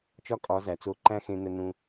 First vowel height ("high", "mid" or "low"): low